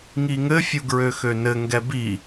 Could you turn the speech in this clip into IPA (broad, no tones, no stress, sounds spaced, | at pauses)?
ŋ i ŋ ɘ fʲ u ɡ ɹ ø x ø n ɘ ŋ ɡ ɛ b i